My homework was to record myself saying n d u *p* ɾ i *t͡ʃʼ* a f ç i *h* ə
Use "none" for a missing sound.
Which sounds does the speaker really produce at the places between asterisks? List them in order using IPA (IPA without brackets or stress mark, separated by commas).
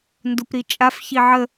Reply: p, t͡ʃʼ, ʕ